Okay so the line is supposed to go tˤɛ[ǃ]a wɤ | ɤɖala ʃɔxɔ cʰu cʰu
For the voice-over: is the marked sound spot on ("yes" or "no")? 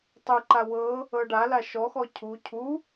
yes